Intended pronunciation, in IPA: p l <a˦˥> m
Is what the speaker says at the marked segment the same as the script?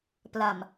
no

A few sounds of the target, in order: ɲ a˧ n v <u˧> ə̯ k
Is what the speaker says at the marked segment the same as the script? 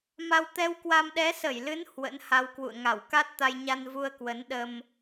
yes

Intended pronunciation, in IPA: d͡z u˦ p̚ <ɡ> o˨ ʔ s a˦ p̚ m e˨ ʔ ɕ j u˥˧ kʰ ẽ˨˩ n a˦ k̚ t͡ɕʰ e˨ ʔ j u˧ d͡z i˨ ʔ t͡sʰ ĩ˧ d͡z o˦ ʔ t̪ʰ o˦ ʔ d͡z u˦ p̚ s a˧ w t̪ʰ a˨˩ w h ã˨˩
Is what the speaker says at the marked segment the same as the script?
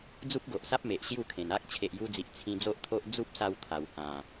yes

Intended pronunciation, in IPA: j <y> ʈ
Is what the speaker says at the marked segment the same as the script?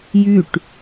yes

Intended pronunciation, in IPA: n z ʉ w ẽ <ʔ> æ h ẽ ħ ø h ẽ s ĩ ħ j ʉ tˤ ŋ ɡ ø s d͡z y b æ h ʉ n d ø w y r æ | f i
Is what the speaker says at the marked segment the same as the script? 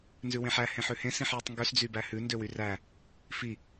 no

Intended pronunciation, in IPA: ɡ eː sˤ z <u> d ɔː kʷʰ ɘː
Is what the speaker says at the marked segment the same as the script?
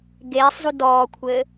yes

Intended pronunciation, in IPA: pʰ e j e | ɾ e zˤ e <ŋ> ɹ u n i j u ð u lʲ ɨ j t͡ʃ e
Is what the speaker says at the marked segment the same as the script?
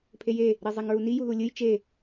yes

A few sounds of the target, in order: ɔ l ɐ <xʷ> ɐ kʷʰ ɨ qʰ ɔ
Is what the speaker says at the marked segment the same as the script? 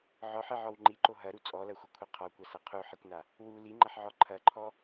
yes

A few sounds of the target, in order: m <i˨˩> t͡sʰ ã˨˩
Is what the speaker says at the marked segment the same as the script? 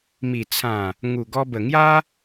yes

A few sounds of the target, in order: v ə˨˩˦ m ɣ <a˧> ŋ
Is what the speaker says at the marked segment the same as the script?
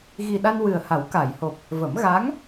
no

